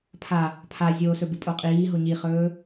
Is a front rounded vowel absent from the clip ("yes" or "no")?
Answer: yes